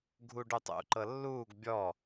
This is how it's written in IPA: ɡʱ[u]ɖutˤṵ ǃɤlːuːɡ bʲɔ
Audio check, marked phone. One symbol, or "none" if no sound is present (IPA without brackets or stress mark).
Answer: u